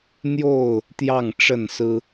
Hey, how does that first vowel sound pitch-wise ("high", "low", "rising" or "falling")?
falling